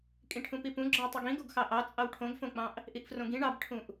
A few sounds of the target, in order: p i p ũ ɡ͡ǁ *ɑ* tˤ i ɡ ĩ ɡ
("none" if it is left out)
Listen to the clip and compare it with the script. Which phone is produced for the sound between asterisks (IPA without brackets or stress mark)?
ɑ